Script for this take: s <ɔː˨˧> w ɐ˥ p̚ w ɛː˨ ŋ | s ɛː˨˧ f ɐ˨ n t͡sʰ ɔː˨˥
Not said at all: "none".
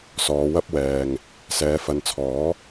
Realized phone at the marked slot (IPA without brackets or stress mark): ɔː˨˧